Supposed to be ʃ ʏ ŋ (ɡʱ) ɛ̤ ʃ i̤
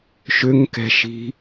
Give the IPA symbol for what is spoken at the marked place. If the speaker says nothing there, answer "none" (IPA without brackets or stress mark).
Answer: k